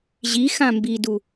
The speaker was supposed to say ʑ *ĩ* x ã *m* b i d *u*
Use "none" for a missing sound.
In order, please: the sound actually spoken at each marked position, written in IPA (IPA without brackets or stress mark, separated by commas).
i, m, u